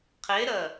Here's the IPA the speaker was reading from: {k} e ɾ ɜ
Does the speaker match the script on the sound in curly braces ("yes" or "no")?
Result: no